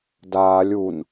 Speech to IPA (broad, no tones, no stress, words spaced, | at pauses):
daːlʲ un